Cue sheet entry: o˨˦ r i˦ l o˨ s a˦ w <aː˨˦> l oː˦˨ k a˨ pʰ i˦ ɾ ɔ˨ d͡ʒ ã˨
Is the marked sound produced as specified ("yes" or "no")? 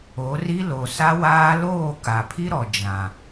no